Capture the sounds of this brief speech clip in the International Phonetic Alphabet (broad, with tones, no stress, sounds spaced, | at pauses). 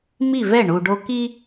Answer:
m i˥˩ v ɛ˥˩ ɳ u˨ ɖ o˦ k i˦